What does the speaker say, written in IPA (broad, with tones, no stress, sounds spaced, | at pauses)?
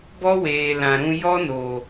b ɔ˦ w eː˨ l ã˨ ɾ ũ˧ j ɔ˦ n oː˨